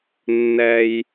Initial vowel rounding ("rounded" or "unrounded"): unrounded